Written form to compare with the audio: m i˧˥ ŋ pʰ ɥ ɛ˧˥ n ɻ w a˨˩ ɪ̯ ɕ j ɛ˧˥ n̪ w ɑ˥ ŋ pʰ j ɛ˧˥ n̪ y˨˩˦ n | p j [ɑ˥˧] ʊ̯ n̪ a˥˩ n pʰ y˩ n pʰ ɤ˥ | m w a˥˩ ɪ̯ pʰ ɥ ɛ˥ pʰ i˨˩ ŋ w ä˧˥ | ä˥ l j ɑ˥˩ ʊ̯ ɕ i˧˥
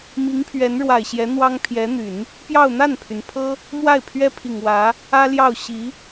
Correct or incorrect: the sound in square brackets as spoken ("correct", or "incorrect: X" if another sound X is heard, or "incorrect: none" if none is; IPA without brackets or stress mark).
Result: correct